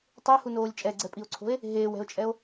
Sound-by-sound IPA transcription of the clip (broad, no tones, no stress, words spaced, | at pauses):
tˤehunoːlʲ t͡ʃʼɛɡ͡ǀɛpʼio̯ǀʰo̤e̯ | ɦeːwɛ̤o̯t͡ʃʼɛo̯